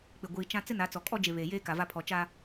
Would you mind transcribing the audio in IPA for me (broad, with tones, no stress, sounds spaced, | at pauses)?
k͡p ɪ˨ ɡʷ iː˨ t͡ʃ ã˦ t͡s ɪ˦ n a˨˦ t͡s ɔ˨ kʼ ɔ˦ d͡ʒ e˨ β eː˨ j eː˦ k a˨ v a˦ pʰ ɔ˨ t͡ʃ a˦